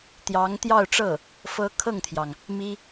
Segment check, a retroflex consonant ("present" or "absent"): present